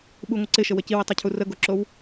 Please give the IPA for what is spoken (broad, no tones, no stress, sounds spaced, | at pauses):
ɓ u ŋʷ ɪ ǀ ɪ ʃ ə w ə c i w i tˤ o cʰ u r ə ɡ o ǁ o w